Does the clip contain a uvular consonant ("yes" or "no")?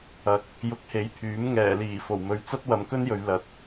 no